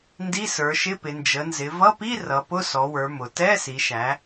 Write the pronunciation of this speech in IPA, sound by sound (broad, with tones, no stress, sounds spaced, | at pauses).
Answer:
n d i˧˥˧ s ə˞˩˧ ʃ ɪ˧˥˧ p ɪ˩˧ n d͡ʒ ə˩˧ n z ɪ˩˧ v ʌ˧˥˧ p i˧˥˧ r ʌ˩˧ p ʊ˧˥˧ s ɔ˩˧ w ə˞˩˧ m ʊ˩˧ t ɛ˧˥˧ s i˩˧ ʃ æ˩˧